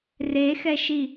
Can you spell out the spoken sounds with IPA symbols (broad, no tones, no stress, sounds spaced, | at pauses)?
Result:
r e x ɛ ʃ i